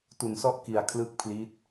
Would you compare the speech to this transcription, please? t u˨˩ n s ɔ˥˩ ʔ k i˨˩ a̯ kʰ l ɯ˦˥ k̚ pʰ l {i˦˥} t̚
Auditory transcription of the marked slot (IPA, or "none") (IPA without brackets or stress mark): i˦˥